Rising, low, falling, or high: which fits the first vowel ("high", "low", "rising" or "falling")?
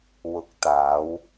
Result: low